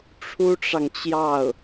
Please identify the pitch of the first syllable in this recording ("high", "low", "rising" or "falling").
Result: high